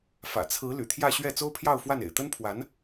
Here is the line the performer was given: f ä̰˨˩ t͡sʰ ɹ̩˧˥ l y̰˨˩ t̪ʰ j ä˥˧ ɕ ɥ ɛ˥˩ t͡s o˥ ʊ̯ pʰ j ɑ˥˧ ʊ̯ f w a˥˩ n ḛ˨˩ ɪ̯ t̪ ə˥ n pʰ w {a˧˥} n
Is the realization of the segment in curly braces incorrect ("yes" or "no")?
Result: no